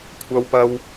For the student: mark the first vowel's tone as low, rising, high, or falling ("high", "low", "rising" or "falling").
high